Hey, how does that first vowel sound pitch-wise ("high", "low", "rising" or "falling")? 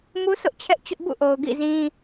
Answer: high